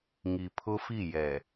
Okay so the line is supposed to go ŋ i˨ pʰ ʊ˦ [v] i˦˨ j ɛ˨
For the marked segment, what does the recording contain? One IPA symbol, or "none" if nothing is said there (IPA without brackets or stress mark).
f